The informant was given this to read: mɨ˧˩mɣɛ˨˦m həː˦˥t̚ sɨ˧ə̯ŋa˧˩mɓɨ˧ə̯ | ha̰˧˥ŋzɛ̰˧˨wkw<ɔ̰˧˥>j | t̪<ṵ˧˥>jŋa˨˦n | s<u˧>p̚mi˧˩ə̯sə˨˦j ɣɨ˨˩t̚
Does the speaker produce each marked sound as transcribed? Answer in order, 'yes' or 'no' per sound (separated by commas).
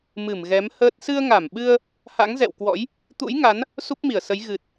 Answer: yes, yes, no